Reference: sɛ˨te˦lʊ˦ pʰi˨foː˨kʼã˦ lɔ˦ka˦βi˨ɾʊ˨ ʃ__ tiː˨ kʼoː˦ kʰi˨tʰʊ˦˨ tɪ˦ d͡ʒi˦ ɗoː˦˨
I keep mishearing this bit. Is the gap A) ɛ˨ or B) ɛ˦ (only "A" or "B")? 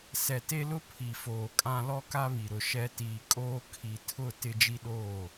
B